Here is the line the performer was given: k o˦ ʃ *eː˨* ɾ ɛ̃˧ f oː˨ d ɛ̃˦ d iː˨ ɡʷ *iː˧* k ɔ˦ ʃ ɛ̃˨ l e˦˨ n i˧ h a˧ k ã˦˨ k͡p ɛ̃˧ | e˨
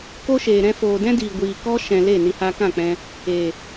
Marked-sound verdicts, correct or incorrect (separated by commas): correct, incorrect